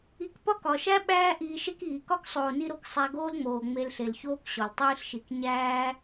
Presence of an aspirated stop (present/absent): absent